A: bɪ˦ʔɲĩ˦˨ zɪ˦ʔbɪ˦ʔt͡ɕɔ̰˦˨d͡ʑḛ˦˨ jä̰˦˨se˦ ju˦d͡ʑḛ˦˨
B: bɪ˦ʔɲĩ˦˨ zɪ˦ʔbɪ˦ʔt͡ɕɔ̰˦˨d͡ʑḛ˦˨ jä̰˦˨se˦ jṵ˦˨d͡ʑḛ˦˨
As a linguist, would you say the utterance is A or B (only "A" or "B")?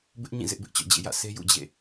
B